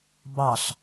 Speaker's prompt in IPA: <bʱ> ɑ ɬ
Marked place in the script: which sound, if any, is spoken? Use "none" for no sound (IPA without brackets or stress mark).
b